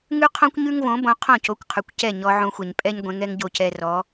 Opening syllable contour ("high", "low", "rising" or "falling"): high